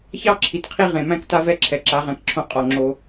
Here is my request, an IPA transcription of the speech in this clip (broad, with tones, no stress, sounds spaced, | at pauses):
ç ɑ˦ ǁʰ i˨ t qʰ i˦ ʁ ẽ˨ m æ̃˦ k t a˦ v ɛ˦ ǁʰ ɛ˨ ǁ a˨˦ ʁ æ̃˧ k ǁʰ õ˧ qʼ ɔ˨ ŋ͡ǁ o˧